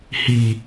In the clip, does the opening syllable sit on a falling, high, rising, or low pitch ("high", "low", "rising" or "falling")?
low